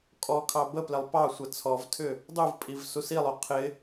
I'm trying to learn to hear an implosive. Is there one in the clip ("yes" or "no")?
no